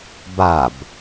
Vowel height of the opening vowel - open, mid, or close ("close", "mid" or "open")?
open